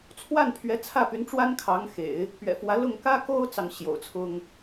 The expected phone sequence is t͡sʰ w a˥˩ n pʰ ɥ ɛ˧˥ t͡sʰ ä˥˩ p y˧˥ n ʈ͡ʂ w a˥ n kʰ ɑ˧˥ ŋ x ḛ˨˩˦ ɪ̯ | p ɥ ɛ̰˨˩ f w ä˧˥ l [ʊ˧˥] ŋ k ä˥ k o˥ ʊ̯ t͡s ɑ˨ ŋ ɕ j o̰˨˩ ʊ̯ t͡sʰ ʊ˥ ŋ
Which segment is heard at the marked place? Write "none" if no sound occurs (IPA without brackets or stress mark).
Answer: ʊ˥˩